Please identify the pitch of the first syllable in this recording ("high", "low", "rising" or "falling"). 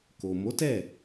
low